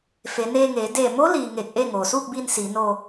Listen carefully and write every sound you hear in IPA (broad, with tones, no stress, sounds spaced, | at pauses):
f e˩˧ n eː˧ ŋ eː˩˧ d eː˧˩ m o˧˥ l iː˩ ŋ e˧˩ k̚ ʔ e˥˨ ŋ oː˩ s uː˥˨ k̚ b iː˧ n s iː˩˧ n o˧